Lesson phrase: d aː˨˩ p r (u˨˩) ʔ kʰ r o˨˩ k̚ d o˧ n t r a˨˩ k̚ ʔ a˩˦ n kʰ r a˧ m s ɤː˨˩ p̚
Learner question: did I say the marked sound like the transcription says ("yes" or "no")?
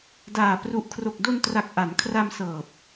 yes